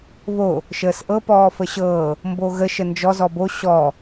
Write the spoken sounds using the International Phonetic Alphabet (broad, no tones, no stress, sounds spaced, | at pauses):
β o | ʃ əː s ʔ ɤ p ɔː f ə ɕ ɤː | m b o ɣ ə ʃ ə n d͡ʒ ɔ z ɔ b o ɕ ɔ